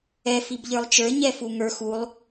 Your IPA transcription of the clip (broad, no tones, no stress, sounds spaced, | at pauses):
ɛ f i b ʎ ə˞ lˠ t͡ʃ ə˞ ɲ ɛ f u ŋ ə˞ x u lˠ